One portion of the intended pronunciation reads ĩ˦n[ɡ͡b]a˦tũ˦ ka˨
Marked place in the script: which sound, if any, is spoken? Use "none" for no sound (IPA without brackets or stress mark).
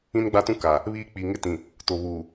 ɡ͡b